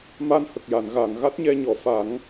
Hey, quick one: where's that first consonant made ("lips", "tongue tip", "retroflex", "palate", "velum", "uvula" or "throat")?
lips